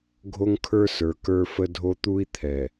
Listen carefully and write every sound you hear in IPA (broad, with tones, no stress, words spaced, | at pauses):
ɡʱo˦ŋkʰə˞˦sə˞˨ kə˞˦fə˦dʱo˦ t̪u˦i̯t̪ʰɛ˨